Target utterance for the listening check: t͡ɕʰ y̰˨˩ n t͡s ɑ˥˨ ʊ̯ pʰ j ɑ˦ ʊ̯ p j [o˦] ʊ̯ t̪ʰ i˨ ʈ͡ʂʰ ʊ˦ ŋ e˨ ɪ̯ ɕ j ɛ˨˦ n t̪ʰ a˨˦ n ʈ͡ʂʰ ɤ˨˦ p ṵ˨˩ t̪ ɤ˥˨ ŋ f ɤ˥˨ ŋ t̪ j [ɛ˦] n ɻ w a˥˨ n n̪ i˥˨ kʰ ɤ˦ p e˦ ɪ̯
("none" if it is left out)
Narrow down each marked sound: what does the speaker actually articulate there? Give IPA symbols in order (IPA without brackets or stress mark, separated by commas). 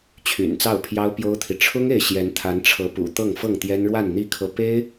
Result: o˦, ɛ˦